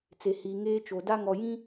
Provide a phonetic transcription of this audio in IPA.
t͡s e˨ h iː˨ ŋ eː˦ t͡ʃ o˨ d a˦ ŋ ɔ˨ j ĩ˦

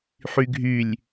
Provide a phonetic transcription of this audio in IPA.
ħ y ɡʱ y lʲ

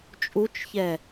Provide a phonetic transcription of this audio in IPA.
t͡ʃʼ u t͡ʃ ç ɛ

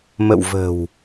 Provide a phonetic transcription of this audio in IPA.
m ə̰˧˨ w v ə̤˨˩ w

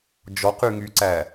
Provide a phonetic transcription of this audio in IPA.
d͡ʒ ɔ q y ŋ y ǀ æ

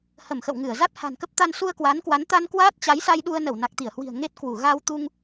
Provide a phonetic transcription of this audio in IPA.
h ə˧˩ m x ə̰˧˨ w ŋ ɨ˧˩ ə̯ z a˦˥ t̚ h a̤˨˩ n k ə˦˥ p̚ t̪ a˧ n s u˧ ə̯ k w aː˨˦ n k w a˨˦ n t̪ a˧ n k w aː˦˥ t̚ t͡ɕ a˨˦ j s a˧ j ɗ u˧ ə̯ n ə˧˩ w n a˨˩ k̚ t̪ i˧˩ ə̯ h w i̤˨˩ ə̯ ŋ e˦˥ t̚ k w u˧˩ ɣ a˧ w t̪ u˧ ŋ

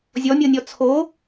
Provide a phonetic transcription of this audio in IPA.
zʲ ɔ mʲ ɤ nʲ ɔ t͡sʰ o

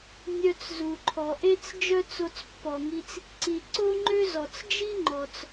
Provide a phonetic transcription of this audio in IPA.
nʲ œ˧ t͡s z u˩ ǃʰ ɔ˩ ʔ e˥ t͡s d͡ʒ œ˥ t͡s o˧ t͡s pː ɔ˩ ŋ i˧ t͡s | ǀ i˩ ǀ o˥ ŋ͡ǃ ø˥ z ɔ˩ t͡s d͡ʒ i˥ ŋ͡ǃ ɔ˩ t͡s

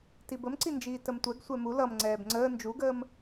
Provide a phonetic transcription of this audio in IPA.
t i b ə m ǀ i n d͡ʒ iː t ə m tʷ ɛ ɡ sʷ ɛ m u l ʌ m ŋ͡ǀ ɛː b ŋ͡ǀ əː n d͡ʒ u ɡ əː m

